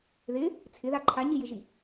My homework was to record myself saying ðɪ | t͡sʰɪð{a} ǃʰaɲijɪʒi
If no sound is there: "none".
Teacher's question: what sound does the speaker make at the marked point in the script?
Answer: a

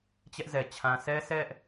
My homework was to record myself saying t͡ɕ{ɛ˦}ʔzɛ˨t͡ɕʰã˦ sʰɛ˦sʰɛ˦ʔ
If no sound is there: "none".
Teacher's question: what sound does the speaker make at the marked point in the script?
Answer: ɛ˦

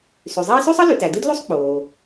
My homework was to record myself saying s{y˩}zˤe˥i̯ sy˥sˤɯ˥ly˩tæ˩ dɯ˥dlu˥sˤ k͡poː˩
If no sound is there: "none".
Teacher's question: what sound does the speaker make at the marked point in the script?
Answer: y˩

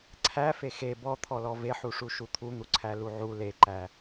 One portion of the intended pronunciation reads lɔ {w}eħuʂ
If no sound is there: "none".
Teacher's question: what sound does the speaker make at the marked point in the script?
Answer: v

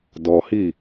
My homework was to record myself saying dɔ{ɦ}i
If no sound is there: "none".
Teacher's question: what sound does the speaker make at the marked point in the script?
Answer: h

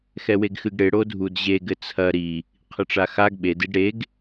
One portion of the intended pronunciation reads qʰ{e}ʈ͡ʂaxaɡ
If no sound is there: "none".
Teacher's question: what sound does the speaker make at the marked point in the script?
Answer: ɨ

